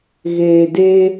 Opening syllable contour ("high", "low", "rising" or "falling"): low